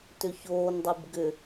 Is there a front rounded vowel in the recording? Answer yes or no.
yes